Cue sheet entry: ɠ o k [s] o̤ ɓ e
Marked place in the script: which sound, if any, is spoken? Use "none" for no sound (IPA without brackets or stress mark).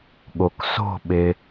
s